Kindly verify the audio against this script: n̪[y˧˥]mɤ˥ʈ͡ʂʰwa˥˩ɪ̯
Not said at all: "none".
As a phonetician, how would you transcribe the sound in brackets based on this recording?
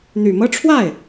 y˨˩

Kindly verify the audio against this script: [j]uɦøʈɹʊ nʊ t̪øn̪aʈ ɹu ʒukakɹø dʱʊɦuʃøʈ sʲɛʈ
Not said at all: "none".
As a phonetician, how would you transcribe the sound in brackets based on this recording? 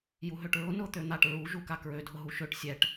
j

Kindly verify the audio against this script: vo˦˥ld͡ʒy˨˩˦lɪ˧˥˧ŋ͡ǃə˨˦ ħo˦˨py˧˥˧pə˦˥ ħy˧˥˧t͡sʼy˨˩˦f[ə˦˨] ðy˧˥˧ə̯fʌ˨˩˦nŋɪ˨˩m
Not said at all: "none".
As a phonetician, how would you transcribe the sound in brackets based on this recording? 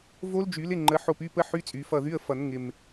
ʌ˦˨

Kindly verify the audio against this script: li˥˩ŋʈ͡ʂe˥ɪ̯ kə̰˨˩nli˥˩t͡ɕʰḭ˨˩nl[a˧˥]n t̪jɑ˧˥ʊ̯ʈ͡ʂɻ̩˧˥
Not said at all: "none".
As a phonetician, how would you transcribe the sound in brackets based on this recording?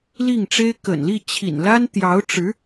a˥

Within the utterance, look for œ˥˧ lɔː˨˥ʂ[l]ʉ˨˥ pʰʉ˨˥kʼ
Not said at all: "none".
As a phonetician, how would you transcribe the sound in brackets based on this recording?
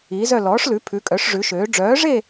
l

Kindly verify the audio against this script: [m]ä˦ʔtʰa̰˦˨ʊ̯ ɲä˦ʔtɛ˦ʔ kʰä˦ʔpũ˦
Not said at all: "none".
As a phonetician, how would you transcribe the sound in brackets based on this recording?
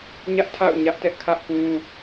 ɲ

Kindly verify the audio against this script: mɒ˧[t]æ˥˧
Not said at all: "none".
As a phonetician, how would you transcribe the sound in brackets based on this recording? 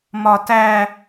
t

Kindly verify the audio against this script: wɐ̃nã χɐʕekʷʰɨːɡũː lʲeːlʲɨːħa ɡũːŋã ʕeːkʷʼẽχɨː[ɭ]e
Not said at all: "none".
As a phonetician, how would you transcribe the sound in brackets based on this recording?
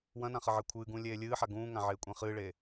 ɭ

